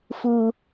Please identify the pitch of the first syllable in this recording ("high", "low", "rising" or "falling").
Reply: low